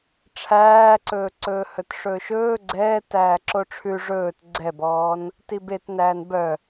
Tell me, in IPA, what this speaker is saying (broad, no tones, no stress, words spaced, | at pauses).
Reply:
ʈ͡ʂʰæːǀɵːǀɵːhɵt ʂɵːʃɵː ɡ͡ǀɛː tæːǁoʈ͡ʂʰʉ ʐɵːt ɡ͡ǀɛbɔːn | tibet næːnbœ